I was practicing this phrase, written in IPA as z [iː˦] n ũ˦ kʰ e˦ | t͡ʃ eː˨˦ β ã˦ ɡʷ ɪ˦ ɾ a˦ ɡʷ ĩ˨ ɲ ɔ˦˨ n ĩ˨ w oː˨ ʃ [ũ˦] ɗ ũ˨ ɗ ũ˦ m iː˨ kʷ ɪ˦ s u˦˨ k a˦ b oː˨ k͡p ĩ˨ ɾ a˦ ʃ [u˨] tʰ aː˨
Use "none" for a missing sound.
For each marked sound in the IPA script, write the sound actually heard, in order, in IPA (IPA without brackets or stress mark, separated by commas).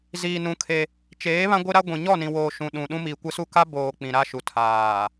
iː˨, ũ˨, u˨